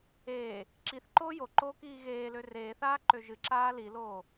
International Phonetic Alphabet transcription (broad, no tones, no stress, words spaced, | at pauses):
eː | ǁiθ ǃoːjoǃoːk iːɣeːlø reːθaː ǃøʒɨǁaː liloː